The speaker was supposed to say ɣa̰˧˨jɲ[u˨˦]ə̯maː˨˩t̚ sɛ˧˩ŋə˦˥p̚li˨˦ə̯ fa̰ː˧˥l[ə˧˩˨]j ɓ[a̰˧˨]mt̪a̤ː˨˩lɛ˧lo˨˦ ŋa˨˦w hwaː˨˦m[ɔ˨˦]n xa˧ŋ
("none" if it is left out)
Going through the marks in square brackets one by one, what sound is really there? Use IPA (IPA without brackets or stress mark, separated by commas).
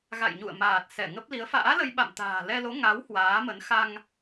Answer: ṵ˧˨, ə˧, a̰˧˨, ə˨˦